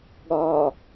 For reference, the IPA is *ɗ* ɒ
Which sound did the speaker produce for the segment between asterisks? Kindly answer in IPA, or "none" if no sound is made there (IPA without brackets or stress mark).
ɠ